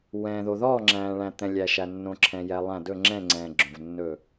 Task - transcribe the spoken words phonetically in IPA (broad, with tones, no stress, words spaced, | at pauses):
wɛ̃ː˩ðo˩ðɔː˧˩ ŋ͡ǁæ̃ː˩ɭæ̃˩ t̪ɛ̃˩lʲæ˩ʃæ˩ nːõ˩ǁʰɛ̃˩jɛ˩ lˠæ̃˧˩ dɵ˧˩ŋ͡ǁɛ̃˧˩ ŋ͡ǀɛ̃ː˩ɡ͡ǁõ˩v nːɵ˧˩